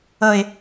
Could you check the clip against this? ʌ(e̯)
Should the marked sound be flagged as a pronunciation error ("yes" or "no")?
no